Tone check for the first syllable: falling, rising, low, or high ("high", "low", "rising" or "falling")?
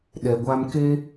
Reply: low